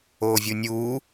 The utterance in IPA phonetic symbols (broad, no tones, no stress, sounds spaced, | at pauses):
oː vʲ u nʲ uː